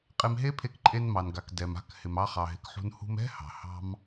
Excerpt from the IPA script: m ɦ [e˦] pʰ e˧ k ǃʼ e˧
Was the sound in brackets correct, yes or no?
yes